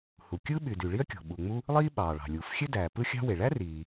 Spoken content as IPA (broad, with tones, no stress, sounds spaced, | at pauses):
h u˩ kʲ ɯ˥ ɓ y˩ d y˩ ɭ i˥ ɐ̯ kʲ o̤˩ ɓ uː˩ ŋ͡m u˥ | lˠ iː˥ ɓ ɑː˩ ɭ ɑ̤˩ lʲ uː˩ f xʲ ø˥ d æː˩ p ɯ˥ xʲ ɑ̤˥ w e˩ ɭ æ˥ r iː˩